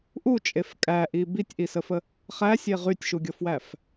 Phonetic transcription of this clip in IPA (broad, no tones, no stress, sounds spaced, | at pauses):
ʔ u t͡ʃʼ e f kʼ æ ʔ i b i tʲ ʔ i s ə f ə | χ æ sʲ e ʁ y tʲ ʃ u ɡʲ ɤ f w æ f